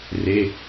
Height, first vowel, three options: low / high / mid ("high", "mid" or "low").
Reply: mid